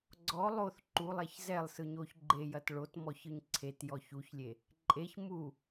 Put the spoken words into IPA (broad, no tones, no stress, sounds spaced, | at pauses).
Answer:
ɡ͡ǀ ɔ lˠ o θ ǃ u lˠ ɛ ç z ɛ lˠ s ɯ ɲ o ç ɡ͡ǃ e j ɐ t ɭ o t m ɔ ç ɯ ɲ ǀʰ e t j ɔ ç u ç lʲ e | ǃʼ e ç m u